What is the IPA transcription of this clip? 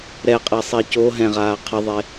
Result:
ɾɛqʼɛsˤi co ɦɛ̃ʁaː qʰɨðˤe

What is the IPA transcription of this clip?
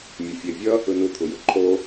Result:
mʲʌfʲe vʲʌ | ɯnɯ t̪ʰujɯǃʰo

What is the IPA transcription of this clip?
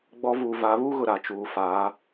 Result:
ɡ͡bɔ˦ vuː˨va˨˦βuː˦ɣʊ˨ ɾa˨t͡ʃuː˨ faː˨˦

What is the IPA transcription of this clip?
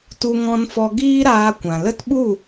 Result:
tu˧ŋɔ̃˧nfɔ˧ ɡiː˦ɾaː˧kʷã˨ lə˦tɓu˦˨

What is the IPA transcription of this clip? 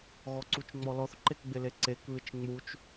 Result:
ɣɔǀut͡ʃŋ͡mɔlɔθ ǃekɡ͡bɪleǀek βɪt͡ʃŋ͡mut͡ʃ

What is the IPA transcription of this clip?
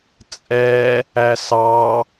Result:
t͡sʼɛ | æsɑ

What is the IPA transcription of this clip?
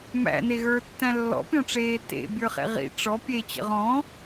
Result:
mæ̰neɣə˞tːæ̃ lːɔ̰pʲɔ̃ʈ͡ʂeː tḛbʲə˞χḛ ʁḭ ʈ͡ʂɔ pʲet͡ɕə̰ʁ ɔ̃

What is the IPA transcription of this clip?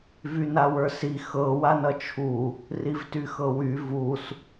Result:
vynawə˞si xɤ wanʌt͡ʃʰu | rivtyxɤwy vus

